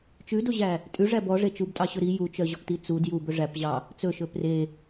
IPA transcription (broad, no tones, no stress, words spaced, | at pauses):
t͡ʃʉdoʑæ | tʼʉʐæ bɔʐe t͡ʃubtʼɑɕɵ ɾi jut͡ʃœʑɔpti t͡su djubɵ ʐæpʑɑ | t͡sɵʃɵ pre